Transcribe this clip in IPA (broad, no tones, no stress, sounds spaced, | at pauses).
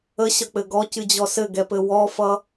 ə ɕ ʌ k͡p ɘ ɡ ɔ c ɨ d͡ʑ ɔ s ɘ ɡ ɛ p ɘ w ɔ f ʌ